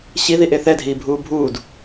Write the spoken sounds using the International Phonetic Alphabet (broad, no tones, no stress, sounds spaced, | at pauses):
ɕ i ð i ʔ e θ ɛ dʱ iː bʱ uː bʱ uː d